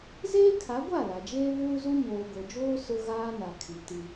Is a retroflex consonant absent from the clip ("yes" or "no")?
yes